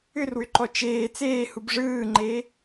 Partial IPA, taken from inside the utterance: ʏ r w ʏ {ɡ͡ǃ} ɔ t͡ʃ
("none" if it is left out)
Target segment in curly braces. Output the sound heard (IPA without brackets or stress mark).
ǃ